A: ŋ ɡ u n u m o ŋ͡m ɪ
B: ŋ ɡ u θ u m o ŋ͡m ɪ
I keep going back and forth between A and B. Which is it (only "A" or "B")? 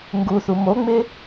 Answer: B